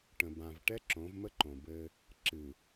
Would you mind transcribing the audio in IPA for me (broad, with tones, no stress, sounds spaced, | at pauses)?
ʈ ə̃˨ b ã˨ v ʈ ɛ˦ ǁ õ˨˦ v m ə˦ ǃ õ˨ b ɘ˦ | ǁ ɨ˨